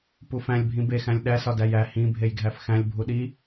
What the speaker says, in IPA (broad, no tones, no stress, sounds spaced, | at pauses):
p u f æ̃ lʲ bʱ ĩ b e x æ̃ lʲ ɗ æ s ɒ d æ j æ h ĩ bʱ e j ɡʱ æ f x æ̃ lʲ bʱ u ɗ i